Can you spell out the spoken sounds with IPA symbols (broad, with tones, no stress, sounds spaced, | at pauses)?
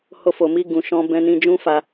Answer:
h o˧ f o˨ m i˧ ɡ ũ˨ ʃ ɔ̃˧ b ɛ̃˧ n ĩ˧ d͡ʒ ũ˦ f a˦